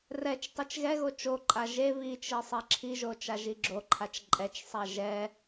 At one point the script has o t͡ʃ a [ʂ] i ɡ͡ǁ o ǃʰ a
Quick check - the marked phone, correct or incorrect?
incorrect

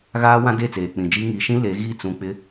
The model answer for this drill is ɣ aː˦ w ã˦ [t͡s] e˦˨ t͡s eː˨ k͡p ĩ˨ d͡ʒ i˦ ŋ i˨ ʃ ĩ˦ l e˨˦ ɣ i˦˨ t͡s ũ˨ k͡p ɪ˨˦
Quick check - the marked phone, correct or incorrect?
incorrect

